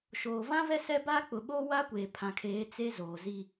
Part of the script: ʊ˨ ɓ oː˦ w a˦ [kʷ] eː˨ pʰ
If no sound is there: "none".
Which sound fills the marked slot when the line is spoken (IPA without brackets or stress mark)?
kʷ